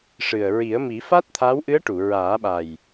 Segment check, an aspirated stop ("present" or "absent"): present